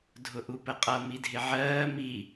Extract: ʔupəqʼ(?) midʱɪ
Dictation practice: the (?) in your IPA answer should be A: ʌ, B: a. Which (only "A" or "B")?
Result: A